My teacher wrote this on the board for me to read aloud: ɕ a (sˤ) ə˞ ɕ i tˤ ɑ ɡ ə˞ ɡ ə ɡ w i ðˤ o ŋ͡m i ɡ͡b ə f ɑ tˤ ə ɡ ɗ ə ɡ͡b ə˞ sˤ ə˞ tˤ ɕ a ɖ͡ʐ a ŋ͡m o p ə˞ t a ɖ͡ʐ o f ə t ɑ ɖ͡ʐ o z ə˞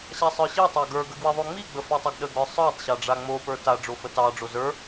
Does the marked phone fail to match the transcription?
no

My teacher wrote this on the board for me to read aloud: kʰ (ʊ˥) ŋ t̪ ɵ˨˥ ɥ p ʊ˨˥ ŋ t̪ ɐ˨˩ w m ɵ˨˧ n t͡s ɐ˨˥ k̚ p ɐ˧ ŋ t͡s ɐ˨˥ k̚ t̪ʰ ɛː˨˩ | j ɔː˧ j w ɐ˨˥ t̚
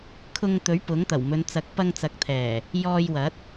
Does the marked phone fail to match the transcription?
yes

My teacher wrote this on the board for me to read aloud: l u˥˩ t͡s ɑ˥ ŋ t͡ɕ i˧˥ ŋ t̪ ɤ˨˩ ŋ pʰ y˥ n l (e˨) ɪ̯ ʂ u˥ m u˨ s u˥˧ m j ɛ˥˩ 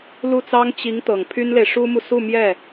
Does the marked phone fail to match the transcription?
no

